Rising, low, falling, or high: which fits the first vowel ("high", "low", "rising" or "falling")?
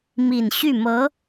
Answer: low